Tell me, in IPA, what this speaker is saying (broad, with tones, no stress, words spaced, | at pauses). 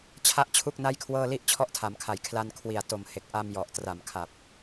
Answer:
t͡ɕʰa˥˩ʔt͡ɕʰu˥˩k̚na˥˩jkʰwɤː˥˩ li˥˩ʔ t͡ɕʰɔ˦˥ʔtʰa˩˦mkʰa˩˦j kʰla˧n kʰwi˨˩a̯ to˨˩mhe˨˩k̚ ʔa˧mjɔ˨˩ʔtra˨˩m kʰa˨˩p̚